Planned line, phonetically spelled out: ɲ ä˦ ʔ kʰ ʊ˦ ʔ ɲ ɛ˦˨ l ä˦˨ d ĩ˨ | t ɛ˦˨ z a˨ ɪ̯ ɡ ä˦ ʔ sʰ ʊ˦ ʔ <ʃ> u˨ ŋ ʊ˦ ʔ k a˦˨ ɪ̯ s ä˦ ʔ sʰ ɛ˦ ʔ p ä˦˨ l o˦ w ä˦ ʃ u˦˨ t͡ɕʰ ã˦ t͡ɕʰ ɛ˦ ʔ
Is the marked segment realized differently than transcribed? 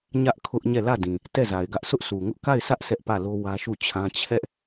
yes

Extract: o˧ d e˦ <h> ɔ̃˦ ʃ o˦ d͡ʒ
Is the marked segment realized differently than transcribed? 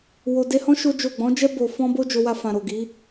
no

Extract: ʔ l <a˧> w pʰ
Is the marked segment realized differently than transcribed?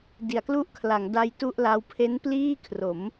yes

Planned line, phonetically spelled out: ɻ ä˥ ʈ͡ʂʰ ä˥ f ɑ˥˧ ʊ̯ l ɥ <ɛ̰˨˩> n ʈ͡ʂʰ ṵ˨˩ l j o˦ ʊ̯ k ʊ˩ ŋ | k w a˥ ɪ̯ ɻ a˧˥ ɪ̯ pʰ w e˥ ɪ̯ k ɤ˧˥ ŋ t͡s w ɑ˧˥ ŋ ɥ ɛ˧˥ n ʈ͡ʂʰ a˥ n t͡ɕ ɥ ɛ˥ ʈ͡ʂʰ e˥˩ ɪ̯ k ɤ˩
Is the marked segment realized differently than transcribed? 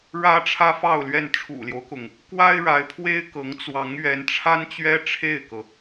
yes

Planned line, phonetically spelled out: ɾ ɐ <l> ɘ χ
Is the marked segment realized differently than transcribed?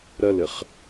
no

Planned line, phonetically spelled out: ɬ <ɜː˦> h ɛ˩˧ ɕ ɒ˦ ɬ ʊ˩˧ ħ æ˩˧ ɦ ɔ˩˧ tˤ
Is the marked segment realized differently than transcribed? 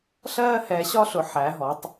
no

